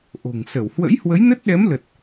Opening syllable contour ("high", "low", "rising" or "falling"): low